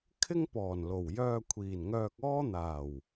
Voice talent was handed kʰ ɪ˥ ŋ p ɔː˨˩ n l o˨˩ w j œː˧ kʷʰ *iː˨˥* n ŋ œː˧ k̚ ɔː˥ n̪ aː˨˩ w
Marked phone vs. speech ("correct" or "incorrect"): incorrect